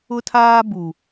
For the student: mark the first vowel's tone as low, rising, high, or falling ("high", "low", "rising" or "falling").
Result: high